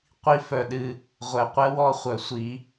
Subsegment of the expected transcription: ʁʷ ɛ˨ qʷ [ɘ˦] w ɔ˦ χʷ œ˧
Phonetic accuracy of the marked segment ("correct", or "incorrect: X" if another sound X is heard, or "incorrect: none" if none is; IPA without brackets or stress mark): incorrect: ɛ˦